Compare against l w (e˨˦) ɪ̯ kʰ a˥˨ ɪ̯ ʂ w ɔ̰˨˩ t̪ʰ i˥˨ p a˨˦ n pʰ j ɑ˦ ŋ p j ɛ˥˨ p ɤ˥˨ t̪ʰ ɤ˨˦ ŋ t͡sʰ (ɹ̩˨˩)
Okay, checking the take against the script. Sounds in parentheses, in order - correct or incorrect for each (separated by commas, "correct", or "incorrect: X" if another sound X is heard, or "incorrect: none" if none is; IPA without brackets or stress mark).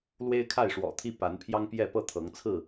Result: incorrect: e˦, incorrect: ɹ̩˥˨